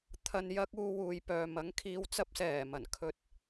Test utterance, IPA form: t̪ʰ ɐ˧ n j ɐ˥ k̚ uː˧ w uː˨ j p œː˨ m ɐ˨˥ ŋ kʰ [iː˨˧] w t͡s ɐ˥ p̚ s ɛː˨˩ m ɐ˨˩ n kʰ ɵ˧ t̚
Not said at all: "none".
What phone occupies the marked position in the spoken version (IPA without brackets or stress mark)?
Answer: iː˧